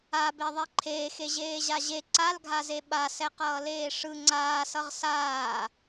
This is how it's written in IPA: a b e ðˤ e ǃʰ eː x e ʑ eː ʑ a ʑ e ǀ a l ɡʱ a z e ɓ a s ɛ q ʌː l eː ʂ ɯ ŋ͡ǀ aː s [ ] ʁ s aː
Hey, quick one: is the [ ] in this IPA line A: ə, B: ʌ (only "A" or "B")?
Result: B